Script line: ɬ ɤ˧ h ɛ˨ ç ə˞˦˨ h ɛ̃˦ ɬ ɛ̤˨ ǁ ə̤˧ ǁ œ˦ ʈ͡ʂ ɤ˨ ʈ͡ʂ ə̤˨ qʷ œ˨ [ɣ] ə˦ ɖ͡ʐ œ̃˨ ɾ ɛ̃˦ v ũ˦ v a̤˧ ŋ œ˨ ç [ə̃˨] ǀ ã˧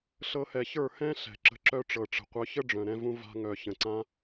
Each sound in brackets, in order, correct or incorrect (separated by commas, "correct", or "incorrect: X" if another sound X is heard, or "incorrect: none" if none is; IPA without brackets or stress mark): incorrect: ç, correct